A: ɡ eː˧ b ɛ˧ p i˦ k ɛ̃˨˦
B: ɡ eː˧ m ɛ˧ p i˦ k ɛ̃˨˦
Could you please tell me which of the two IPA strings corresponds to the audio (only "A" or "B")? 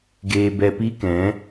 A